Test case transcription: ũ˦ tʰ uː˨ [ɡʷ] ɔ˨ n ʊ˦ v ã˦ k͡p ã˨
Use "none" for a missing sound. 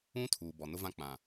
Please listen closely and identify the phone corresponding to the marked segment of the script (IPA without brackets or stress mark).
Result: b